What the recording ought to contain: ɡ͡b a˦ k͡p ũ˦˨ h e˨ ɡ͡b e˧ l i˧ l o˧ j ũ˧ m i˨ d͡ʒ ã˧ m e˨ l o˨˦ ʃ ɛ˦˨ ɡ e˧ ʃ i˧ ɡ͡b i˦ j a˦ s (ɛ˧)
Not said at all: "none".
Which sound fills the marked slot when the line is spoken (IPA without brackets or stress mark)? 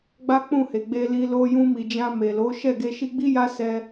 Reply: ɛ˧